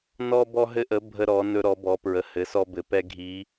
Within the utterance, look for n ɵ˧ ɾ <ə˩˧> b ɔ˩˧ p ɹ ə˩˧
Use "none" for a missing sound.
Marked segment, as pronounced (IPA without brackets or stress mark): ɔ˩˧